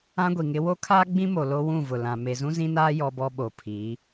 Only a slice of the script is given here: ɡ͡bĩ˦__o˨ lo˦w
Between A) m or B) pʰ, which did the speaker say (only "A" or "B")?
A